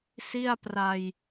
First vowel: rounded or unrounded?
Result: unrounded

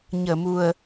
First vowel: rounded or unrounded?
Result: unrounded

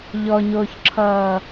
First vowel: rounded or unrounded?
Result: rounded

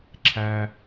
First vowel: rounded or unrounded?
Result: unrounded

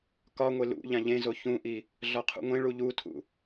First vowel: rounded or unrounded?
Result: rounded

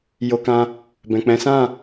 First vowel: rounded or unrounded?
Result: rounded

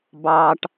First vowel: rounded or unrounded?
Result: unrounded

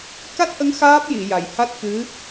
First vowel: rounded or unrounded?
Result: unrounded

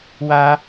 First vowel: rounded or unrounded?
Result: unrounded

